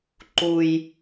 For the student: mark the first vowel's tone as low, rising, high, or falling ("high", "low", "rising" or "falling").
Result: low